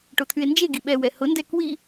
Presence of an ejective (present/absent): absent